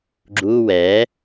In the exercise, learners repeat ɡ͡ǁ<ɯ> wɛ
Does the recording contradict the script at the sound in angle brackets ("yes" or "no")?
yes